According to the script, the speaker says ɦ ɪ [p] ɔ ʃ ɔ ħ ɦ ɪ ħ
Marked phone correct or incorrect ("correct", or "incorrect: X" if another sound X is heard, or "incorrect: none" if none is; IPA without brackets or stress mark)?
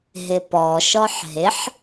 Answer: correct